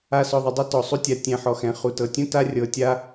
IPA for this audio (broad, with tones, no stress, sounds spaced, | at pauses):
a˨ s ɔ˩ ðˤ o˩ dˤ e˦ t ɔ˩ sˤ u˦ tʲ a˨ tʲ ɛ̃˨ ħ ɔ˨ x ɛ̃˩ χ u˩ t ɤ˩ tʲ ũ˥ t a˦ rʲ ɤ˨ tʲ a˦